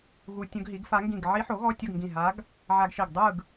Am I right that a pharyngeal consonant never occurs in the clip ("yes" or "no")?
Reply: no